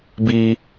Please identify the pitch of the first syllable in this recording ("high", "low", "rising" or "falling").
high